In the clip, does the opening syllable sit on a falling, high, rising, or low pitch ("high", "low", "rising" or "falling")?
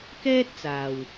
high